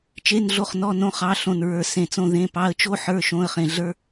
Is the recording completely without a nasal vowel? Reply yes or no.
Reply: no